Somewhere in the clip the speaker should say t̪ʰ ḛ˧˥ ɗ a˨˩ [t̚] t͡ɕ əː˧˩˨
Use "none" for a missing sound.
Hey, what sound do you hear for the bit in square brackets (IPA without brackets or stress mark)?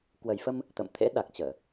k̚